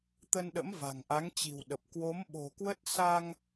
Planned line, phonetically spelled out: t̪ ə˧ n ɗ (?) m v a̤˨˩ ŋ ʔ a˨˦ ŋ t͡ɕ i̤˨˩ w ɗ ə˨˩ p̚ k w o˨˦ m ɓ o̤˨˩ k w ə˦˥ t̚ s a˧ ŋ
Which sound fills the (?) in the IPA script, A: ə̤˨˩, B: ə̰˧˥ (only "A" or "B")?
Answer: B